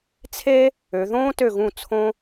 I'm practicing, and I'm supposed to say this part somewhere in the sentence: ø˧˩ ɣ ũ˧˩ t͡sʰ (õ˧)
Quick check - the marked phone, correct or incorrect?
correct